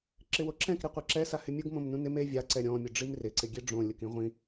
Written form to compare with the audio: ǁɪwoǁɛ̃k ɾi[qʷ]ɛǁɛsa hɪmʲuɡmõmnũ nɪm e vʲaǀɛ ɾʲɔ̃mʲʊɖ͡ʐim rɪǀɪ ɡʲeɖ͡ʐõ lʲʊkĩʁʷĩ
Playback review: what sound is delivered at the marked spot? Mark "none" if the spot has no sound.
qʷ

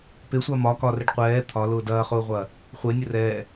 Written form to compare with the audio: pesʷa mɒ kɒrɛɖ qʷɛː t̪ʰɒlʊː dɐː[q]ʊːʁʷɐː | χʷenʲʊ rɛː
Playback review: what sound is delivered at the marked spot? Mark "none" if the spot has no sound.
χ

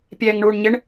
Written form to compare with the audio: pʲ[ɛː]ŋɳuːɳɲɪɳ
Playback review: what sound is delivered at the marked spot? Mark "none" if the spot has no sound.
ɛː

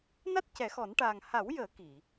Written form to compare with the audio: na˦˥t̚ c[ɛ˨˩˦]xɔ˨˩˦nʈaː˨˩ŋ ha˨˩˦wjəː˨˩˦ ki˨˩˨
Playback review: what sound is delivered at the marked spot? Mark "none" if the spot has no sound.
ɛ˨˩˦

